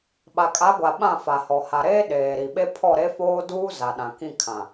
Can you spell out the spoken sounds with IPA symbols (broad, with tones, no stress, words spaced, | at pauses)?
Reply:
ɓa˨kʼa˨˦ɡʷa˨ ɓã˦˨fa˨hɔ˨ ha˨ɾeː˦ ɗeː˨ɾi˨ɓe˦ pʰɔ˦˨ɾe˦foː˦ duː˦ za˨ɗã˨kĩ˦˨ kʰã˨